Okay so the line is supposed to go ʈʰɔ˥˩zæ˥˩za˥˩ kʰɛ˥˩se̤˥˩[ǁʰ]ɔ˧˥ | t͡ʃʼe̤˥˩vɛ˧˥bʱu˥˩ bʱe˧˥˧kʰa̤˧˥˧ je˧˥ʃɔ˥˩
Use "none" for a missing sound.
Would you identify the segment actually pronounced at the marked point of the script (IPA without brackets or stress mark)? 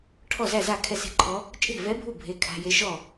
ǃʰ